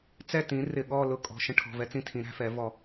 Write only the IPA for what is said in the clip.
t͡s ɛ˥˨ t ĩ˩˥ r ɪ˧˩ ɠ ɔ˥˨ l ʊ˦ kʼ ɔ̤˩˧˩ ʃ ə̃˦ ʈʰ ɔ̤˩˧˩ v ɛ˦ t͡s ĩ˦ tʰ ĩ˩˥ ɾ æ̤˦ f ɛ˩˥ v ɔ˧˩

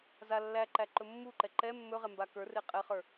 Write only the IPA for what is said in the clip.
z a lː æ ǃ æ ǃ ɵ mː u ǃ ɛ ǃ ɛ mː ɵ ʁ ɛ m b a k ə˞ r e qʼ ɛ χ ə˞

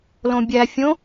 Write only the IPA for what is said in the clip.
l õ bʲ æ fʲ õ

